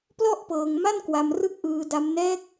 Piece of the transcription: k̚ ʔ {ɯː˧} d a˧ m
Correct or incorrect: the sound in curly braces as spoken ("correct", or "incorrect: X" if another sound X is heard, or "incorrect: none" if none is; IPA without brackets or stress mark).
correct